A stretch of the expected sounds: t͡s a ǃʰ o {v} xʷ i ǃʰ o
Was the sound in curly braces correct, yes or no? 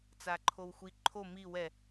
no